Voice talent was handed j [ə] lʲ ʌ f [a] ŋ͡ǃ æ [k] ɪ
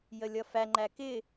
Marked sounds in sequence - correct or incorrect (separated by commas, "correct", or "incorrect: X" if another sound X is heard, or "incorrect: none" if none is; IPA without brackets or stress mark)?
correct, incorrect: æ, correct